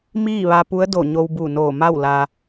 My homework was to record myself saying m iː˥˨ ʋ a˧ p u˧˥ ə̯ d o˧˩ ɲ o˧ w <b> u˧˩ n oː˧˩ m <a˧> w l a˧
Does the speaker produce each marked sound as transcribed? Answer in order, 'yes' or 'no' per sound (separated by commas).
yes, no